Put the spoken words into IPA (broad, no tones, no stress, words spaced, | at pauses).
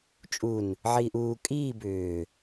t͡ʃʼun | ʕiːʔuː kʼiː bʏː